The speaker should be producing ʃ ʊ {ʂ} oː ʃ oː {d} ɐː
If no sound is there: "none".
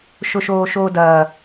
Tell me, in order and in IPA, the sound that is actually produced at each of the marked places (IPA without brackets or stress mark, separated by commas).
ʃ, d